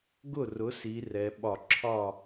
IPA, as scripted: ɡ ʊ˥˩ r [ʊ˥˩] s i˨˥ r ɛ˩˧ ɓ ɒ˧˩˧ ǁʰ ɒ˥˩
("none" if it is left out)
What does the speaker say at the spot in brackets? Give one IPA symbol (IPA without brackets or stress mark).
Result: ʊ˨˥